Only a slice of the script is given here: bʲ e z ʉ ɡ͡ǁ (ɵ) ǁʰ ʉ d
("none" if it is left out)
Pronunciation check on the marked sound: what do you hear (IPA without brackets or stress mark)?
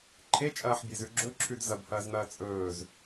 ɵ